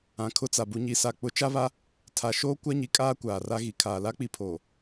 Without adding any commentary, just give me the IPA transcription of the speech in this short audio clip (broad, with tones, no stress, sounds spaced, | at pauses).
ã˨ kʰ ʊ˦ t͡s a˨ b u˨ ɲ i˨ s a˨ k͡p ʊ˨˦ t͡ʃ a˦ β a˦ | tʰ a˨ ʃ oː˦ kʷ a˦ ɲ i˨ kʼ aː˦ kʷ aː˨ r a˦ ɣ i˨ kʰ aː˨ l a˦ k͡p i˦˨ pʰ oː˨